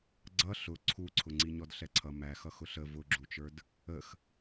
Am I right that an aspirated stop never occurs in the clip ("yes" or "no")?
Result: no